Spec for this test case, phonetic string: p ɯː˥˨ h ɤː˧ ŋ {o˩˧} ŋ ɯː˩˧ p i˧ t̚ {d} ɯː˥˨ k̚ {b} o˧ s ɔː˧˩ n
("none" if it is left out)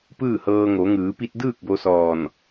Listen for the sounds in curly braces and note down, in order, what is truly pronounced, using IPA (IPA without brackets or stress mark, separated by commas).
o˩˧, d, b